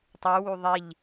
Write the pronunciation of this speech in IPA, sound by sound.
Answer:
tˤy wuðˤiʎ

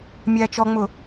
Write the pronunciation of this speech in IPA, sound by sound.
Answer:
mʲæːt͡ʃɔŋ͡mʊ

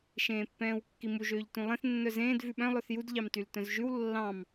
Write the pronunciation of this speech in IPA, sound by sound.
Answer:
ʃẽːpːɛ̃ːwkːimu ʒøːʎtũlˠẽθ nːœzẽːd vʉɓœ̃ lˠœθjud ʎɑmtyltœ̃zʒʉw lːɑ̃m

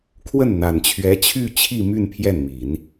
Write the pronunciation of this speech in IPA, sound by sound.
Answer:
kʰwə˥˩nn̪a˨˩nt͡ɕʰɥɛ˧˥ t͡ɕʰy˥˧t͡ɕʰi˥˧my˥˧n pʰjɛ˥˩nmi˨˩˦n

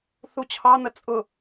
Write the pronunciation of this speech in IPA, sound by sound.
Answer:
θut͡ɕʰɑ n̪ət͡sʼʊ

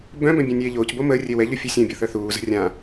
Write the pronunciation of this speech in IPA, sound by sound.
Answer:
bœ̃bœ̃ bʲœ̃nʲeːʎoːcbo məːrʲe wɛʎo fʲusʲœ̃bʲo θœθuːzə̤ rʲã

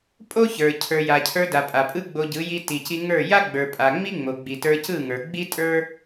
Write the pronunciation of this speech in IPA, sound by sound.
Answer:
pʼo˦çə˞˨ cʰə˞˨ja˨cʰə˞˧da˨ pʼa˨pʼɯ˦ɡ͡bo˧ɟɯ˨˦ ji˧ti˨ci˧ ŋə˞˦˨ ja˦ɡ͡bə˞˨pʼa˨ ŋ͡mi˦ŋ͡mo˨ɡ͡bi˨tə˞˧ cɯ˦˨ŋə˞˨ ɡ͡bi˦tʼə˞˦

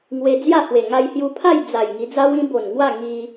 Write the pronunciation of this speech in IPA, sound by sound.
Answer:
ŋwe˧d͡zja˥˧hwe˨˩ ŋa˧jhju˧pʰa˥˧jd͡za˨˩j ŋi˧d͡za˦wĩ˦ bo˨˩nŋwa˥˧ ŋi˦

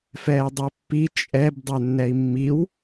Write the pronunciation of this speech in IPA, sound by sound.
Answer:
fɛːdˤœpːi t͡ʃʼɛb dˤœnːɛi̯mːiw

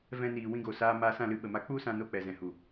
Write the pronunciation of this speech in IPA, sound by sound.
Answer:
vɛ̃˧niː˨ wĩ˧ɡo˨saː˧ maː˧sã˦˨lɨ˧ ɓə˨ma˧k͡pu˦sã˧ no˦˨k͡pɛ˨zɛ̃˨hu˨

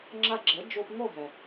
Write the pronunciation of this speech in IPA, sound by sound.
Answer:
ŋ͡ǁa˧ɡ͡ǁɛ˩˥ d͡ʒo˧pŋo˥˩ɦɛ˩

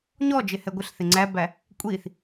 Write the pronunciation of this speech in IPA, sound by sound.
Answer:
ɲɔd͡ʒɪhɛ ɡʷɪɬθɪ ŋ͡ǀæbæ | kʷʼiθ

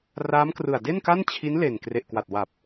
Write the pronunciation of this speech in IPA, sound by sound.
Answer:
raː˦˥mkrɯ˨˩a̯ de˥˩nka˥˩n t͡ɕʰi˦˥n le˨˩n kre˨˩ʔkwa˨˩t̚ wa˨˩p̚

